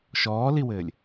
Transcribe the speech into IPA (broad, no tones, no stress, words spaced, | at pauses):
ʃɔːliwɘːlʲ